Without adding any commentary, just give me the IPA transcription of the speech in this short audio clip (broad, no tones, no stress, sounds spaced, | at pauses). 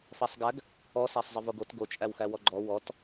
f a sˤ ɡ æ ɡ | ɔ s æ sˤ zˤ ə v o ɡ o t ɡ o t͡ʃʼ æ w x æ w ɔ ɡ͡ǃ ɔ w ɔ t